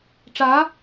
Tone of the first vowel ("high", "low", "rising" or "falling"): rising